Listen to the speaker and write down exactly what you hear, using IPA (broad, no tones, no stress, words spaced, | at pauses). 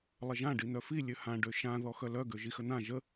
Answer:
lˠəʒã ɖin̪œfi lʲøhã ɖøʃã ðɔxœlœ ɡøʒixən̪ã ʒə